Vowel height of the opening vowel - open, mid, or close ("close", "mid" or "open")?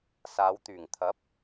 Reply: open